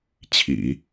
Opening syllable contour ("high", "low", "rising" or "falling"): low